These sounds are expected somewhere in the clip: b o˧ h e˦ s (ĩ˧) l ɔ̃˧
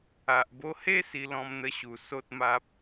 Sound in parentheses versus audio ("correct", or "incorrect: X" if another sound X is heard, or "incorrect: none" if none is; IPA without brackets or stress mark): incorrect: i˧